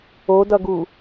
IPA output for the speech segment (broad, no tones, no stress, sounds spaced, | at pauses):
o d ʌ ɡ u